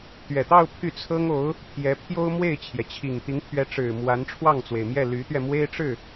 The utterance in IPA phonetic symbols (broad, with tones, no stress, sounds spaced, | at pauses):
t̪ ɥ ɛ˨˩ t̪ ɑ˥˧ ʊ̯ pʰ y˥˩ t͡sʰ ɤ˥ ŋ o˧˥ ʊ̯ | pʰ j ɛ˧˥ pʰ j o˥ ʊ̯ m w e˥˩ ɪ̯ t͡ɕʰ j ɛ˩ t͡ɕʰ i˨˩ ŋ t̪ i˧˥ ŋ pʰ ɥ ɛ˧˥ ʈ͡ʂ ɻ̩˨˩ m w a˧˥ n ʈ͡ʂʰ w ɑ˥˩ ŋ t͡s w e˩ ɪ̯ m j ɛ˥˩ l y˧˥ t̪ ɥ ɛ˧ m w e˥ ɪ̯ ʈ͡ʂ ɻ̩˥˩